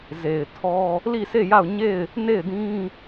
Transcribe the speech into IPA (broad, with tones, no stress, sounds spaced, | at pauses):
z e˨ ɪ̯ tʰ ɔ˦ | l i˦˨ s e˦˨ j a˦˨ ʊ̯ ɲ e˦˨ ɪ̯ | n e˦˨ ɪ̯ d ĩ˦